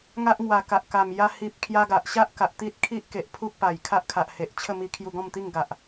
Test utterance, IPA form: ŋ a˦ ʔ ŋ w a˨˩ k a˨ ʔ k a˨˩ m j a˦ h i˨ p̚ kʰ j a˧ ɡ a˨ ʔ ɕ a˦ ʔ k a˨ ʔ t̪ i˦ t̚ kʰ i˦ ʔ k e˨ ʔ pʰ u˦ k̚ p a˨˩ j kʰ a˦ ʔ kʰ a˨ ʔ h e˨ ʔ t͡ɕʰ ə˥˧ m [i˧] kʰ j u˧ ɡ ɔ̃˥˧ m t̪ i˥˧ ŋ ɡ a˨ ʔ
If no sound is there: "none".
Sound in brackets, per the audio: i˧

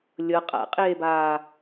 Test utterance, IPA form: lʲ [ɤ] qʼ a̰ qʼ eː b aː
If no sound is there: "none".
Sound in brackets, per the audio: ɤ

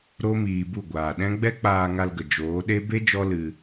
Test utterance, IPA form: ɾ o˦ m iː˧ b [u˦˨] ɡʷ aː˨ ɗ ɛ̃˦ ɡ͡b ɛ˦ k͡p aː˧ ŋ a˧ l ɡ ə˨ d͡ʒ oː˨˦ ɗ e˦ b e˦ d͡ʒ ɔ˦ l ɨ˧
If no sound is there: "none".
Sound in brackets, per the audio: u˦˨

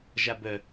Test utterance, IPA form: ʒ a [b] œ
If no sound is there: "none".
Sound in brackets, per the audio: b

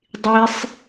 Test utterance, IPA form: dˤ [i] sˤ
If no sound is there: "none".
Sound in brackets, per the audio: i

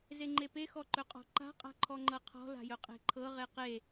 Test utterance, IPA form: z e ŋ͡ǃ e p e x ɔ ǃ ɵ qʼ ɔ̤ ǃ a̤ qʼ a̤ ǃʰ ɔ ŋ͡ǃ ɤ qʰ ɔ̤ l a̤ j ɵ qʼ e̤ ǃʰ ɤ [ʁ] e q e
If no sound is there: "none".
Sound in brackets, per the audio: ʁ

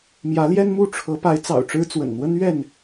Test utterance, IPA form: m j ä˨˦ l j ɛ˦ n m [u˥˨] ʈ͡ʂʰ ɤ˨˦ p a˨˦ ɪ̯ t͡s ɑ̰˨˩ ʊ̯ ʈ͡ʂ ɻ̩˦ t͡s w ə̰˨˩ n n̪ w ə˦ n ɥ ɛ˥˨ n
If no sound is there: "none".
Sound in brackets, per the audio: u˥˨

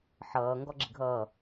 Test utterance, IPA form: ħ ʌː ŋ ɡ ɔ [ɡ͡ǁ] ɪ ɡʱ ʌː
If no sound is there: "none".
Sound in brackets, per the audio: ɡ͡ǁ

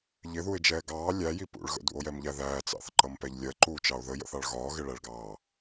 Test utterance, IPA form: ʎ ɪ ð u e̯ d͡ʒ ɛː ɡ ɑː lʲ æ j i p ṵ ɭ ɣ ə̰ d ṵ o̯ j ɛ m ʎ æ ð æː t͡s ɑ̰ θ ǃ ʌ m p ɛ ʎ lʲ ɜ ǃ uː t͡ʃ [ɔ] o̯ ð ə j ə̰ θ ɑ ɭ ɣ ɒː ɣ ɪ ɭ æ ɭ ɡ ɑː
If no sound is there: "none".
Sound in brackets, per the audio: ɑ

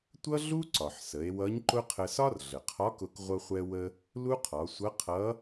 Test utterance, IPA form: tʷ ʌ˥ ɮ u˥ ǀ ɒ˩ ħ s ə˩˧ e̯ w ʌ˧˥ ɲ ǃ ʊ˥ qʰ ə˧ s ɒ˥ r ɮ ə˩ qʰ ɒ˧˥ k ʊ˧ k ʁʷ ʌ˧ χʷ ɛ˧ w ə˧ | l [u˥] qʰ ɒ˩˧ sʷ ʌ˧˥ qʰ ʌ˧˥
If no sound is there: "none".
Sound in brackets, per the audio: u˥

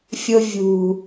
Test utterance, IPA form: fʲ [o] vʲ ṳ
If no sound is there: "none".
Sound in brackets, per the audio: o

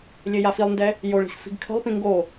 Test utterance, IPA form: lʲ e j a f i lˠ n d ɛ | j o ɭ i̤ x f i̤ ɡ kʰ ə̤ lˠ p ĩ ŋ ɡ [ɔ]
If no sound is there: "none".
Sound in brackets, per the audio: o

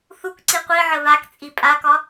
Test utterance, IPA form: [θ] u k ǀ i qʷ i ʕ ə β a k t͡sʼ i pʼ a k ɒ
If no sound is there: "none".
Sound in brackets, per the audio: θ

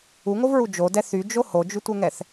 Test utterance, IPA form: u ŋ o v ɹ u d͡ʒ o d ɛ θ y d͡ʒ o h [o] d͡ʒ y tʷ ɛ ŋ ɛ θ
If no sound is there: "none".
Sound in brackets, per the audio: o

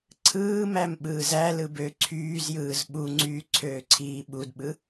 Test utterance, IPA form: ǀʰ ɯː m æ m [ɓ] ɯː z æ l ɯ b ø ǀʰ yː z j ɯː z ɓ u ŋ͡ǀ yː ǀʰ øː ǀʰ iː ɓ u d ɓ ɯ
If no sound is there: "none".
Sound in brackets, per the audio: ɓ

